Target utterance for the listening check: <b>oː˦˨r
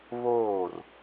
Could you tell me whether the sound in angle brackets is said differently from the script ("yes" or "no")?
yes